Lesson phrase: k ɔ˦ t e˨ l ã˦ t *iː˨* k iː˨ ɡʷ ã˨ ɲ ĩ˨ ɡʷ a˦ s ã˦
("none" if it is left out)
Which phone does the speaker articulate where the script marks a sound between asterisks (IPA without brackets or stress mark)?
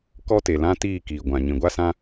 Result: iː˦˨